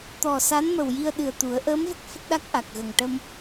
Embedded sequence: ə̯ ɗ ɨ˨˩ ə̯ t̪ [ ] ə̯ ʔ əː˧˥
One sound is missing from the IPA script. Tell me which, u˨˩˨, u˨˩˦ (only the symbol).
u˨˩˦